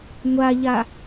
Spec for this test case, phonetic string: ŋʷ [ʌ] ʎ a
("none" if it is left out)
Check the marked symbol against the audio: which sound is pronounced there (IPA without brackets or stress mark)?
a